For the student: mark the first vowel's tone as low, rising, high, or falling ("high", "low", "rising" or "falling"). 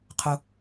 low